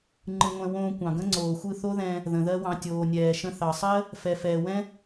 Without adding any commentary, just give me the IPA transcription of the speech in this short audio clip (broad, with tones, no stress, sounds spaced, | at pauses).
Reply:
ŋ͡ǃ ɯ˧ ŋʷ ɛ̃˧ w õː˧ kʷ ɑ̃˨ ɡ ə̃˦ ŋ͡ǀ oː˨ xʷ ɯ˦˨ θ o˦ ð ɛ̃˧ | ð ə̃˨ ð ɜ˦ w ɑ̃˧ tʲ oː˨ nʲ ɛː˨ ʃ ə̃˧ θ ɑ˨ sˤ ɜ˦ | f ɛ˨ f ɛː˨ w ɛ̃˦